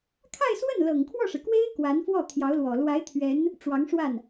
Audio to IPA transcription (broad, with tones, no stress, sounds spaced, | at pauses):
kʰ a˥˧ ɪ̯ s w ə˥˩ n l ɤ˨˩ ŋ kʰ w ɔ˥˩ ʂ ɻ̩˩ k w e˥ ɪ̯ k w a˧˥ n f w ɔ˥˩ t̪ʰ j ɑ˧˥ ʊ̯ l w ɔ˨˩ l w a˧˥ ɪ̯ t̪ʰ ɥ ɛ˧˥ n | ʈ͡ʂ w ɑ˧˥ ŋ ʂ w a˥˩ n